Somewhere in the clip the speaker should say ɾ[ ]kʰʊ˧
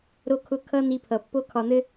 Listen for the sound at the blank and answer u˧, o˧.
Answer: o˧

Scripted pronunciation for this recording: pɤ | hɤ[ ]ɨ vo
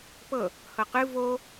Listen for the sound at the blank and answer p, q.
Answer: q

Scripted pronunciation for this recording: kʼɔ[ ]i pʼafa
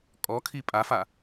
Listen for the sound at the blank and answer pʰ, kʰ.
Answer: kʰ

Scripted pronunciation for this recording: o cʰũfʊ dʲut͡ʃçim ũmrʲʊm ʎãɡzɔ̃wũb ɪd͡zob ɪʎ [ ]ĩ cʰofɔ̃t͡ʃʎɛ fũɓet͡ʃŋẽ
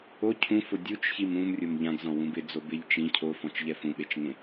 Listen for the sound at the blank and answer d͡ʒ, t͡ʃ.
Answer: t͡ʃ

